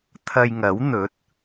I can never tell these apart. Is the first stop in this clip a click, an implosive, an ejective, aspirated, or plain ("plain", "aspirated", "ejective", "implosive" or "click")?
aspirated